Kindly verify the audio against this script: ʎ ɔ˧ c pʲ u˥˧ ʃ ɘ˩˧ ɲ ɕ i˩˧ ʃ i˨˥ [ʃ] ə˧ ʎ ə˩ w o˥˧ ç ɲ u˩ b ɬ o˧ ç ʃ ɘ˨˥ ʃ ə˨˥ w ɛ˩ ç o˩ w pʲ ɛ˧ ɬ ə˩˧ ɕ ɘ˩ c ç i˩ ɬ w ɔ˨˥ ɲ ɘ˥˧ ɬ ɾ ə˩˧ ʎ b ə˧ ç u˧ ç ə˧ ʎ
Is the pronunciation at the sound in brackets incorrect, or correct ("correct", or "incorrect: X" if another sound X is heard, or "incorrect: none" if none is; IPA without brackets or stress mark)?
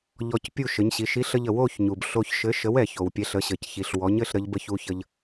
incorrect: ɬ